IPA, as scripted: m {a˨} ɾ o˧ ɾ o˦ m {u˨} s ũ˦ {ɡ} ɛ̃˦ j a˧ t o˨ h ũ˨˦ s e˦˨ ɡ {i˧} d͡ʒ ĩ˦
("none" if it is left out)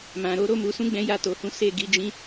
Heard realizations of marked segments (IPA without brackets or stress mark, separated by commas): ã˨, u˧, ɡ͡b, i˧